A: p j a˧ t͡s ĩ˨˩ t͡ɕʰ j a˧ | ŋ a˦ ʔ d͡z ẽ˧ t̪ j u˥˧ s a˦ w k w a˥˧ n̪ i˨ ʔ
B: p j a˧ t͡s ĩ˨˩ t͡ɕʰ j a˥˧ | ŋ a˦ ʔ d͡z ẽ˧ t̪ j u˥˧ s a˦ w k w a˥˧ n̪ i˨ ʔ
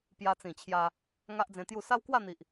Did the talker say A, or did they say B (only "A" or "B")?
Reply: A